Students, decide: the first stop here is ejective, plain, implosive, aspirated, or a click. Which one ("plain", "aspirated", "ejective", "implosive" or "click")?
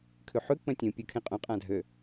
aspirated